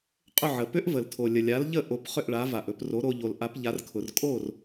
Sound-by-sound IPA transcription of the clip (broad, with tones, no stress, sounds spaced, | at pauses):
qʼ ʏ˥˩ ʕ ə˩ p ʏ˥ ʔ v ə˩ l tʰ o˩ lʲ ə˩ lʲ a˩˥ l ʎ ə˥˩ ʔ o˩˥ p χ ʏ˥˩ ʔ ɭ a˩˥ v a˩ ʔ ɵ˧ p r o˩˥ ɾ o˧ ʎ o˩ l ʔ a˩˥ p ʎ a˩˥ r kʰ ʊ˩ r kʼ o˥˩ r